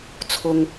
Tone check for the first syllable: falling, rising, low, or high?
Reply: low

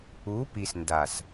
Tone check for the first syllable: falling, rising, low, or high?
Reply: rising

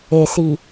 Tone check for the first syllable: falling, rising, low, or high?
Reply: low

